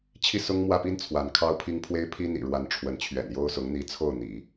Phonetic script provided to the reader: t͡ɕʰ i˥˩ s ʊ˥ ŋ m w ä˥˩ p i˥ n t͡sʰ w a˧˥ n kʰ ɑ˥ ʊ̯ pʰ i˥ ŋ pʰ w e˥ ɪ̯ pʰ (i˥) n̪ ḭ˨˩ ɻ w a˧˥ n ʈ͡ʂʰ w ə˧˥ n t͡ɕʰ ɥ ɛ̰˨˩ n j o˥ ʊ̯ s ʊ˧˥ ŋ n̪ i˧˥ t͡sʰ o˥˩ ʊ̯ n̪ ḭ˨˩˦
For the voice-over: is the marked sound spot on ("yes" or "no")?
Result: yes